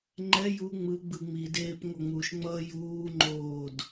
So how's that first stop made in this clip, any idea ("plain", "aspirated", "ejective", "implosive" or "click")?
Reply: click